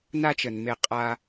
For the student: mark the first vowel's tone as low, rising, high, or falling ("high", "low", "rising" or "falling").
high